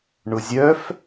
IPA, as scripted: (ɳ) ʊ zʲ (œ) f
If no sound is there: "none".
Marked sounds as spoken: ɳ, œ

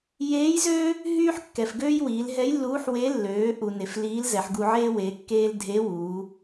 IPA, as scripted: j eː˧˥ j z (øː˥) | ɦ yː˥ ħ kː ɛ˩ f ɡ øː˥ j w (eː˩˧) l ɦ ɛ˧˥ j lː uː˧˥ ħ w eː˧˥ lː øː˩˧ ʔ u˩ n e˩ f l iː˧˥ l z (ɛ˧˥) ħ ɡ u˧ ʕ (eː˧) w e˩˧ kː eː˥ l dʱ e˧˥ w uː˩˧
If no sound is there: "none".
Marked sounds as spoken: øː˥, iː˩˧, ɛ˩˧, eː˥

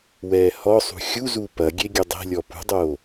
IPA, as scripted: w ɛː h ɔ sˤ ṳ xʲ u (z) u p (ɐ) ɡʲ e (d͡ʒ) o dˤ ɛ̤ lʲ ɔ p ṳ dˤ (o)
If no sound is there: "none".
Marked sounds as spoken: z, ɐ, ɡʲ, oː

